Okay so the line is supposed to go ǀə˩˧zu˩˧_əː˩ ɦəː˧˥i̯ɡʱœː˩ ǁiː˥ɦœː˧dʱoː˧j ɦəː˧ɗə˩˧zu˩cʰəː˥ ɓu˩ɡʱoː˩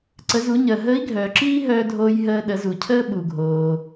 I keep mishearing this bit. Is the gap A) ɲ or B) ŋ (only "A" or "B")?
A